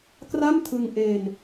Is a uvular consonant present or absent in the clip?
absent